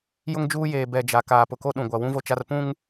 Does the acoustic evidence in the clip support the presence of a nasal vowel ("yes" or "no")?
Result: yes